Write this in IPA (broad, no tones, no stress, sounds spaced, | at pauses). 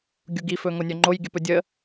ɡʲ u ɡ i f ɵ ŋ o nʲ œ ŋ͡ǃ o j ɡʲ ə p ɵ dʲ ə